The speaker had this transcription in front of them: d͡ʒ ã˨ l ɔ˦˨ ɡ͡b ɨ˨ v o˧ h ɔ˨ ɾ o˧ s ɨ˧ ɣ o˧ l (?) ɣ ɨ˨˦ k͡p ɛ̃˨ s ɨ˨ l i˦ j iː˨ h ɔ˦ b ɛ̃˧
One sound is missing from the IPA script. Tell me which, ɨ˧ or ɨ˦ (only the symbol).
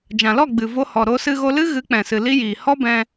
ɨ˦